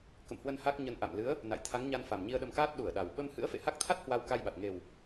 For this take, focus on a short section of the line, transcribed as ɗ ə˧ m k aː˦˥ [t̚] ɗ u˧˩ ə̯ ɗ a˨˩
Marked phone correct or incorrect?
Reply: correct